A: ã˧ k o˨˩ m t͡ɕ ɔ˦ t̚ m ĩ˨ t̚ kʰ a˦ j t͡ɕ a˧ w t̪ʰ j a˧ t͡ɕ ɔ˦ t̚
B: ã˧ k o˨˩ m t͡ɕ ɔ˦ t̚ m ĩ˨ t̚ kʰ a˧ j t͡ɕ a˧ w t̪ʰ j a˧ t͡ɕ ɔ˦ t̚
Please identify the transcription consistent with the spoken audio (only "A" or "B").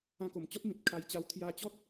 B